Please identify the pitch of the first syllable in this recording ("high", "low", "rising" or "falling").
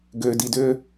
low